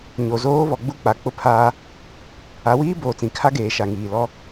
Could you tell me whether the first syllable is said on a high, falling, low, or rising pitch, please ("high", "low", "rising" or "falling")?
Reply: low